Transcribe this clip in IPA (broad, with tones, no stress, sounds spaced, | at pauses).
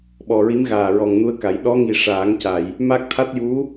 ɓ ɔ˨˩ ɹ i˧˥ m ɣ aː˨˩ ɹ ɔ˨˩ ŋ n u˧ ə̯ k a˨˩˦ j ɗ ɔ˧˥ ŋ i˨˩ ʂ aː˨˩˦ ŋ c a˨˩˨ j | m a˦˥ k̚ t̪ʰ a˦˥ t̚ j u˧˥